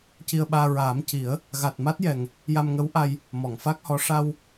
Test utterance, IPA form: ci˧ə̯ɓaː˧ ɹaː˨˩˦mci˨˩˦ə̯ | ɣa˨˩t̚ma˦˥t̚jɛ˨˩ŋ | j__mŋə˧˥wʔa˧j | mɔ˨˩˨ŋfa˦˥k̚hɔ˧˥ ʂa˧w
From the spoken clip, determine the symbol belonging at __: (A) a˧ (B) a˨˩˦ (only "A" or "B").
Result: A